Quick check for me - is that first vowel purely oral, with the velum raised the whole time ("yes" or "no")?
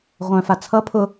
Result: no